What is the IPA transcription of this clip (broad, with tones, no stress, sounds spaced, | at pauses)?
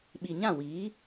ɓ i˨ ɲ ã˦˨ w iː˨˦